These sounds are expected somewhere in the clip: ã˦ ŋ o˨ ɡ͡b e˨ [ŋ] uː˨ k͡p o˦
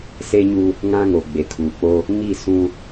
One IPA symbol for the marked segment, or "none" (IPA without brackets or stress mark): kʰ